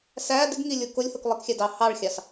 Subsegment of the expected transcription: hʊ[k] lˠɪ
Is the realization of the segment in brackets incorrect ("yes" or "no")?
no